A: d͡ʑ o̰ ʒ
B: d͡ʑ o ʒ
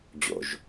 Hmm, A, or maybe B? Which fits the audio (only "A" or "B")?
A